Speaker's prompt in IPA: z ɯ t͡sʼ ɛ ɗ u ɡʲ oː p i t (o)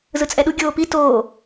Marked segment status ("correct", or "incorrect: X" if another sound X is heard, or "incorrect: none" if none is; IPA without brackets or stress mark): incorrect: oː